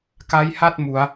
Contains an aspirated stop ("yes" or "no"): no